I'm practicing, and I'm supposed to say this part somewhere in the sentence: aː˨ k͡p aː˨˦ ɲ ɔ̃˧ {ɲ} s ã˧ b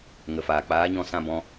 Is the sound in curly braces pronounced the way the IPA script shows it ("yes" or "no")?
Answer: no